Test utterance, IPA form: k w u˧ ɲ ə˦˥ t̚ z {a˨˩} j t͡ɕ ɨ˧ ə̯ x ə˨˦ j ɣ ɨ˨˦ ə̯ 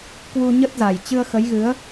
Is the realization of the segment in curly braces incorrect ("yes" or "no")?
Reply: no